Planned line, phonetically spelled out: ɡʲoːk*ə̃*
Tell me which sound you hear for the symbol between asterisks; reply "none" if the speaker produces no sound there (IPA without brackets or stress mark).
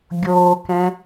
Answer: ɛ̃